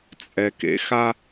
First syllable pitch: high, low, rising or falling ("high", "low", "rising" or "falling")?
low